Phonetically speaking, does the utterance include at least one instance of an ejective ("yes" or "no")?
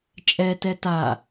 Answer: yes